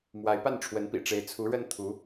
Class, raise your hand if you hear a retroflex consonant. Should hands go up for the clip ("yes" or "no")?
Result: yes